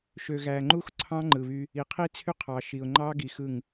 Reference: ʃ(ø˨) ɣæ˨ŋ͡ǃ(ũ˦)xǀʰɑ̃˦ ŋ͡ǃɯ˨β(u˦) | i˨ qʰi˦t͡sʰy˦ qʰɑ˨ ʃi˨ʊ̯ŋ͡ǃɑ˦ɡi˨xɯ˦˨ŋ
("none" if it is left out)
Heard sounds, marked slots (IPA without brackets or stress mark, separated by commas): ø˨, u˦, y˦